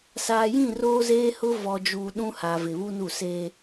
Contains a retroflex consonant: no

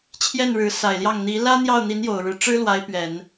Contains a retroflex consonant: yes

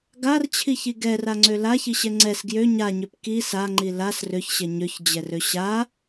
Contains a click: yes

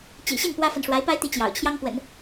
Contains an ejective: no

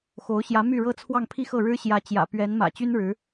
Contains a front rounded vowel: yes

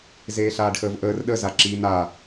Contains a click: yes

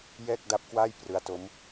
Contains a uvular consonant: no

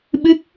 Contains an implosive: yes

